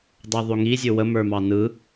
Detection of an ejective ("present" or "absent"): absent